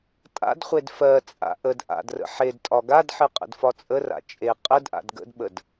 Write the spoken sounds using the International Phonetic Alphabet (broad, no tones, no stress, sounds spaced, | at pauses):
tʼ a̰ d χʷ e d f ɜ t͡sʼ a̰ ʔ ə d ʔ a̰ d r ə̰ ħ e d tʼ ɒ ɡ a d ħ ɨ qʼ ə̰ d f ɒ t͡sʼ ə r a̰ t͡ʃʼ e qʼ ə d ʔ a̰ d ɡ ə̰ d ɓ ə d